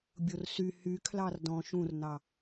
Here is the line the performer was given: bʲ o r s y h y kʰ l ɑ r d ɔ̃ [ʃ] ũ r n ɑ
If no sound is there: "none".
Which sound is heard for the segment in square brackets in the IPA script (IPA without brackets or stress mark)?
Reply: ʃ